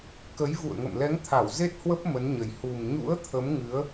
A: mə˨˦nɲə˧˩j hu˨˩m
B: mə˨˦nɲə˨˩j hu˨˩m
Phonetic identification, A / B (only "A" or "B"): B